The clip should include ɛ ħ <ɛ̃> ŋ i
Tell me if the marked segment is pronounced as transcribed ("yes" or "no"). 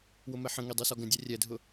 no